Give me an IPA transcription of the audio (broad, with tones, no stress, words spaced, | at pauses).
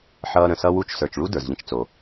ħʌː˦ɾə̃˨ sʌ˥wu˥t͡ʃ sə˞˨t͡ʃɭu˥ də˞˩zʎə̃˦t͡ʃt͡so˩